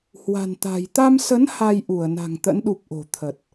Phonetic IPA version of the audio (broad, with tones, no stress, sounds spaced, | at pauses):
h w a̤˨˩ n t̪ a̤˨˩ j t̪ a˧ m s ə˨˦ n h a˧ j ʔ u˧˩ ə̯ n a̤˨˩ ŋ t̪ ə̰˧˥ n ɗ u˨˩ p̚ ʔ o̤˨˩ t̪ʰ ə˨˩ t̚